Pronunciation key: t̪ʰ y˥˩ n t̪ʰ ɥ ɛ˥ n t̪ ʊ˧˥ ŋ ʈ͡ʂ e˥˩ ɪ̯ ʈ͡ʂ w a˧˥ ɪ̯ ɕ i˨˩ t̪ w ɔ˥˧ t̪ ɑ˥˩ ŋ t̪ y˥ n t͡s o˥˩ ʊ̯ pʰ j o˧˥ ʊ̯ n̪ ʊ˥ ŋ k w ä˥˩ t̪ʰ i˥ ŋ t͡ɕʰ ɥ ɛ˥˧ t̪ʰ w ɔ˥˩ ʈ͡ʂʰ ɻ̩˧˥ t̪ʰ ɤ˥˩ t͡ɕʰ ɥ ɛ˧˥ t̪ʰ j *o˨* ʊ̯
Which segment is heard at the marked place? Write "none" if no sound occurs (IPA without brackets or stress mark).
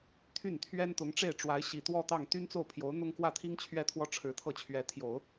o˨˩˦